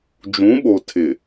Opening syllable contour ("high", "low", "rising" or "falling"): rising